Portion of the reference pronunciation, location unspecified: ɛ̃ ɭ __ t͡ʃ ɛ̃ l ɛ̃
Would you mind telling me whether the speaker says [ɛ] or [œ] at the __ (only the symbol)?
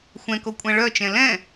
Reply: œ